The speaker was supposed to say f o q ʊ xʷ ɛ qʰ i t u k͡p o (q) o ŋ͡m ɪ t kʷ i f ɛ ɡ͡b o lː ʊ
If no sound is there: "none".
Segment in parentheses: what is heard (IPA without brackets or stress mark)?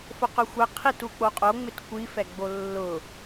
qʼ